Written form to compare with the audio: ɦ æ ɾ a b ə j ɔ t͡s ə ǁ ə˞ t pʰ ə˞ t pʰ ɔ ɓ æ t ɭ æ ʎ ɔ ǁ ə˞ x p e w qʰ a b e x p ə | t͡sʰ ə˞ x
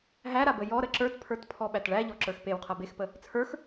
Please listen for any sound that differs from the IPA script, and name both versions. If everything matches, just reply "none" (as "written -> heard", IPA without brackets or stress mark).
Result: t͡s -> ɾ